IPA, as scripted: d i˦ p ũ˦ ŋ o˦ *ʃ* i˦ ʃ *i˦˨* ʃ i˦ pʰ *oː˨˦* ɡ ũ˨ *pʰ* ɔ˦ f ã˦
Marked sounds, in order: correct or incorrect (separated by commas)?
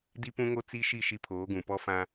incorrect, correct, correct, incorrect